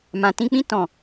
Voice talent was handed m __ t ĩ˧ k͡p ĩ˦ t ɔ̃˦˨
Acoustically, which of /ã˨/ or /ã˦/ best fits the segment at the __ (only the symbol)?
ã˨